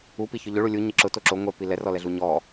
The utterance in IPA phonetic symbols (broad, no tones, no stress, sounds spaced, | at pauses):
u p i ç ʊ ʎ ʊ ɭ u lʲ u ɲ i ǁ ʊ t o ǁ o ŋʷ ɛ p i l ɛ r ɔ l ɛ ɮ u ɲ ɔ